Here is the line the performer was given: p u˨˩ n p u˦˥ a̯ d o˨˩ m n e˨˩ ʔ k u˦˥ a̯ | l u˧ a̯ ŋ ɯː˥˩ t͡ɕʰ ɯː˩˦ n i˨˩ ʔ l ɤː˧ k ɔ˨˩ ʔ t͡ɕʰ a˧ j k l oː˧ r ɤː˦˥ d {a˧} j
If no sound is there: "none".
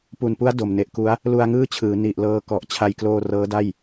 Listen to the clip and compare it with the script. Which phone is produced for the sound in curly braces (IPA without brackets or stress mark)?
a˥˩